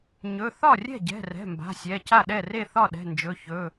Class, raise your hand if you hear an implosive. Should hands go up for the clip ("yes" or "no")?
yes